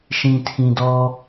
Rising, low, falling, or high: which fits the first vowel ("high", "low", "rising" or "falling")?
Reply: low